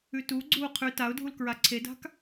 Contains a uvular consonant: yes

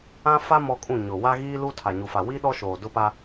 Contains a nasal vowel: yes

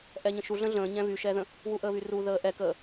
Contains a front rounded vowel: yes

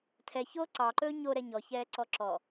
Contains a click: yes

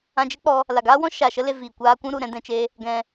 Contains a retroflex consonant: no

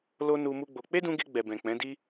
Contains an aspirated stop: no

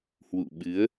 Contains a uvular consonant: no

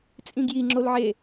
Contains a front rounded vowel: no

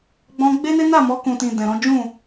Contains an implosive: no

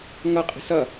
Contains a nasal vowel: no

